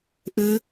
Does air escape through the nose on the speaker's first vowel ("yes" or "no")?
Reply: no